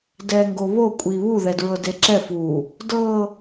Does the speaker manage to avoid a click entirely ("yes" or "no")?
no